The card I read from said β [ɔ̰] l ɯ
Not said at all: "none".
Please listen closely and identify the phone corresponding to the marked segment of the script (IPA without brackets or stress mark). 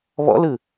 ɔ̰